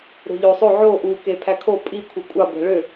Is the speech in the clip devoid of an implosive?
yes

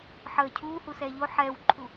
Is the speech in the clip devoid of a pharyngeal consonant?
no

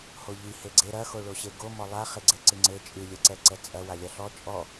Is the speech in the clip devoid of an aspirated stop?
yes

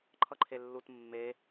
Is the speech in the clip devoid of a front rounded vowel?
yes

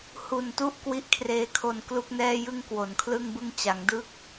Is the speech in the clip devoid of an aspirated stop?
no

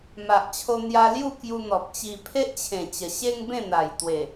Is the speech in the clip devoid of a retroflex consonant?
yes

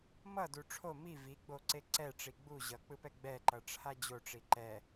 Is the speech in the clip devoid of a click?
no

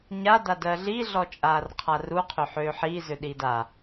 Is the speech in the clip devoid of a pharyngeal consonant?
no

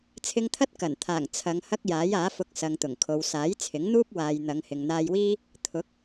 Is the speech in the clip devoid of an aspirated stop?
no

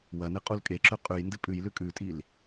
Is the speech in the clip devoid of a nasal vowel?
yes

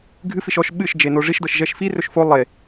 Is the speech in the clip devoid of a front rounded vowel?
yes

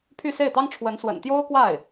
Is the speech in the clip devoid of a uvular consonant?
yes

